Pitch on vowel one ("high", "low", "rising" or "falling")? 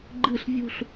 falling